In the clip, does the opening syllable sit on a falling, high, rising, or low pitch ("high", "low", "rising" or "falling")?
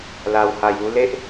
low